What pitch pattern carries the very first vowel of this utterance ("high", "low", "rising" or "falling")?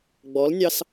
rising